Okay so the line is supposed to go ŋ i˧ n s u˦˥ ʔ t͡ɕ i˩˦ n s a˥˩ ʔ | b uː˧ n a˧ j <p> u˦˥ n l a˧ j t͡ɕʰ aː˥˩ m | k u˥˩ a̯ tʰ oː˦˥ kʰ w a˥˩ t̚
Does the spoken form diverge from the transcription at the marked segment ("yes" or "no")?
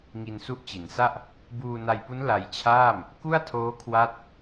no